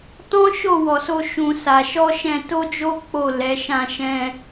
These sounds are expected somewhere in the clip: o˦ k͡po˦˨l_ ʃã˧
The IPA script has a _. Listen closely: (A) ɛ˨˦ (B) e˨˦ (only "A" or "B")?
A